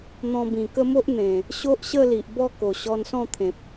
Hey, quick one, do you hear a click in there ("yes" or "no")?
no